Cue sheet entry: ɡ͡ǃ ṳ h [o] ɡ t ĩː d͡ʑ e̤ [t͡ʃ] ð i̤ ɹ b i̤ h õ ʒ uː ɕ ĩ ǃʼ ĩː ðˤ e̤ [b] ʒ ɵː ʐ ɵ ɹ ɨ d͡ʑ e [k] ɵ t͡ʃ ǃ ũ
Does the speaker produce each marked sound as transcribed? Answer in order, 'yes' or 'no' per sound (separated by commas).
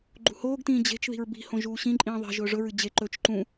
no, yes, no, no